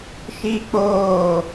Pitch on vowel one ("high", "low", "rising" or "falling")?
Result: high